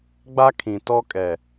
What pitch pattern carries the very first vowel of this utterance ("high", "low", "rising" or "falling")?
high